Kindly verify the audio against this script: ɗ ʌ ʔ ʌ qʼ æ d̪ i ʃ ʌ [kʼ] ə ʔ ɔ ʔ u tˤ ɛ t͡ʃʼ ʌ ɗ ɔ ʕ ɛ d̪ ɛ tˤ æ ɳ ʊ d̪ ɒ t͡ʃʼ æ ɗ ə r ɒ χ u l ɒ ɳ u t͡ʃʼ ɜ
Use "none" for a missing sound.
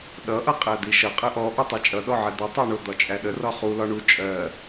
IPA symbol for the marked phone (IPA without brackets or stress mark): qʼ